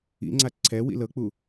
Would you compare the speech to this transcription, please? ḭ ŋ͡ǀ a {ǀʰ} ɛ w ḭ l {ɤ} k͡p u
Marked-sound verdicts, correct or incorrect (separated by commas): correct, correct